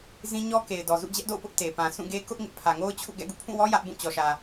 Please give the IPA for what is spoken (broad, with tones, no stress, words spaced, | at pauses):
zĩ˦ ɲɔ˦ke˨ɪ̯dɔ˨ zṵ˦˨d͡ʑɛ˦ʔdo̰˦˨ʊ̯pʊ˦ʔ te˨pã˨ sũ˦˨ɡe˦ kʊ˦ʔ ŋɪ˦ʔ pʰä˨ŋo˦ʊ̯t͡ɕʰṵ˦˨ ɡɛ̰˦˨ɡṵ˦˨pʰũ˦˨wɔ˦ jä˦ʔbũ˦˨ t͡ɕɔ˨ʃä˨